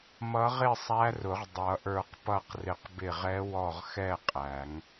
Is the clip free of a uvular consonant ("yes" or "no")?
no